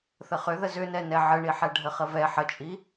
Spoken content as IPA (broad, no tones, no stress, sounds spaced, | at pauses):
θ ə χ ʏ ð ə z ʏ n ɛ n ɛ ʕ ə ɳ i ħ ɛ ɖʱ ə χ ə v ɛ ħ ə t͡ʃʼ i